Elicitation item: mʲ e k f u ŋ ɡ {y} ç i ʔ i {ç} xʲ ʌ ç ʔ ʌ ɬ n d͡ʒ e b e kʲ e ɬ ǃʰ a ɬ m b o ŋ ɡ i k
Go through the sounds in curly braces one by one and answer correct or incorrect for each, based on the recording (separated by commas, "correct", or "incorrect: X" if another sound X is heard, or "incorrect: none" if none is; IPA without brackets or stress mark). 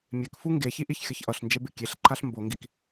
incorrect: e, correct